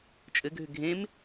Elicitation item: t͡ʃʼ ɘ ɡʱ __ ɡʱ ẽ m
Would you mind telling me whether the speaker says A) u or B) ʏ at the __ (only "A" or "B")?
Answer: B